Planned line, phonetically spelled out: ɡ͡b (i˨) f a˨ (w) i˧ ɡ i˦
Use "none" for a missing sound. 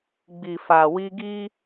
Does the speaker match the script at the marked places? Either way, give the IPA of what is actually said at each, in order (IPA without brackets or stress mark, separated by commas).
i˨, w